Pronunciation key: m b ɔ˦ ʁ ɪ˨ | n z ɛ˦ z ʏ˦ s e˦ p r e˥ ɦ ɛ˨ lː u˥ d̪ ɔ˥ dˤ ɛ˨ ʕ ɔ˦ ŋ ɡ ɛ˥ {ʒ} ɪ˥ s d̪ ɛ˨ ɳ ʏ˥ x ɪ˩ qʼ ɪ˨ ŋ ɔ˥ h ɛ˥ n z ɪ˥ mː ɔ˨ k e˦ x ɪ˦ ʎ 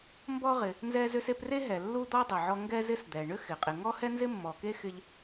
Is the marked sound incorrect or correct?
incorrect